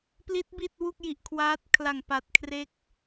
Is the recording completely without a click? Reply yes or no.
yes